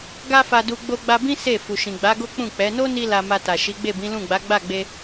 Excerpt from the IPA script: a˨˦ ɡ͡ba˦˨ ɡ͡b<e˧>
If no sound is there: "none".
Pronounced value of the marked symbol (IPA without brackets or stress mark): e˧